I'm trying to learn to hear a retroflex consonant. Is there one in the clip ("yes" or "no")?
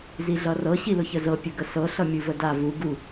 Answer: no